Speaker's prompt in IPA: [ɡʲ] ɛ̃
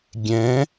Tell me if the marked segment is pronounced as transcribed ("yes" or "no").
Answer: yes